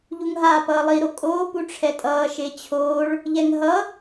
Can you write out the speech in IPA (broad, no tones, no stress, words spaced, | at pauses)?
ʎuŋɦaːpʌːlˠi ɾokʼoː puʈ͡ʂʰɛtʼʌː ʃet͡ɕʰoːɭ | ʎɛŋɦʌ